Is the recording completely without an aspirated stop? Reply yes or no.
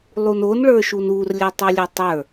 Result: yes